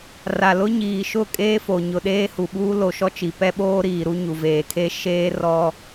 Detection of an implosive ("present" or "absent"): present